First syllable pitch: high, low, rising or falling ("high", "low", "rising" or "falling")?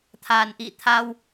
low